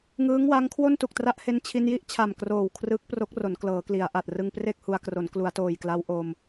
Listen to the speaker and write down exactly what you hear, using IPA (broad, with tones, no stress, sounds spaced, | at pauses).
ŋ ɯː˦˥ ŋ w a˦˥ ŋ kʰ w o˥˩ n t u˨˩ k̚ t r a˦˥ ʔ h e˧ n t͡ɕʰ i˧ n j i˥˩ ʔ t͡ɕʰ a˨˩ m k r oː˨˩ w kʰ r ɯ˦˥ k̚ p r o˦˥ k̚ r o˩˦ n k l ɤː˩˦ k l i˩˦ a̯ ʔ a˨˩ t̚ r ɯ˧ ŋ p r e˥˩ k̚ h u˧ a̯ k r o˩˦ n k l u˩˦ a̯ t oː˨˩ j k l a˦˥ w ʔ o˧ m